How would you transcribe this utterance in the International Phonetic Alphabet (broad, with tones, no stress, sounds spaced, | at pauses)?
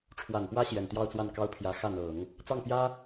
ʈ͡ʂʰ w a˨˩ n p w ä˥ ɕ j ɛ˨˩ n t̪ j ɑ˥˧ ʊ̯ t͡s w a˥˩ n k ɑ˥ ʊ̯ pʰ j ä˧˥ x ä˥˩ n̪ ɤ˨˩˦ ŋ | t͡s ɑ˥˩ ŋ p j ä˥